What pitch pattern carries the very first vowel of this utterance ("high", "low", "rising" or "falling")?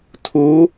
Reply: rising